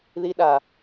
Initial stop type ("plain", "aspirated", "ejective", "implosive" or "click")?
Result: implosive